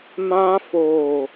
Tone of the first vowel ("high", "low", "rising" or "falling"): high